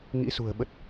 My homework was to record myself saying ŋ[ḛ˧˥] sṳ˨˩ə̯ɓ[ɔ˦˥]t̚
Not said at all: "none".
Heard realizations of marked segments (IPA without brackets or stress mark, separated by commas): ḭ˧˥, ə˦˥